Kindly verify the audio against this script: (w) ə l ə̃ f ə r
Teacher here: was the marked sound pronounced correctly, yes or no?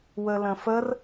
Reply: yes